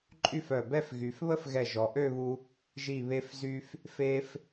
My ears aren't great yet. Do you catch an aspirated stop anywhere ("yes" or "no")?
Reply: no